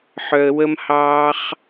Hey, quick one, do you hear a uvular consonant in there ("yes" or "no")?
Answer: yes